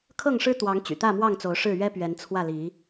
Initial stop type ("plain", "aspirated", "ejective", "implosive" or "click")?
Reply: aspirated